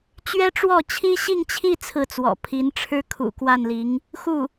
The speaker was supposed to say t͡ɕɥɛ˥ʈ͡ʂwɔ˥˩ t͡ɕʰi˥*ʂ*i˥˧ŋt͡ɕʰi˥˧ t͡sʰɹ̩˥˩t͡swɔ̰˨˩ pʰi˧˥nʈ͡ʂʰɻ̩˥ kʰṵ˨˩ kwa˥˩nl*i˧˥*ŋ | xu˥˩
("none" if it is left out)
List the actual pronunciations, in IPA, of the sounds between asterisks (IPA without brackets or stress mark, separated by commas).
ɕ, i˧˥